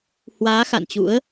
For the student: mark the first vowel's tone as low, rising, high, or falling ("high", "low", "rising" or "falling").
rising